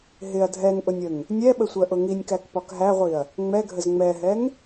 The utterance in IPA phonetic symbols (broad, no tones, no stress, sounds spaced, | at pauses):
ɦ ɪ ɐ̯ dʱ ɛ ŋ ʔ ʊ nʲ ə ŋ | nʲ ɛ ɓ ə sʷ ɜ ʔ ʊ ŋ i nʲ k æ k p ɒ k ɦ æ ʁʷ i ɐ̯ | ŋ͡m ɛ ɡʱ ə z ŋ͡m ɛ ɦ ɛ ŋ